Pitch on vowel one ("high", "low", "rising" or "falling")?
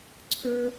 high